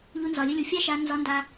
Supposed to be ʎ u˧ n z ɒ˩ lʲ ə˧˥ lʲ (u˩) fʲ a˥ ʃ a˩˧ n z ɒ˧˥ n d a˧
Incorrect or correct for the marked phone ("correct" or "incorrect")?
correct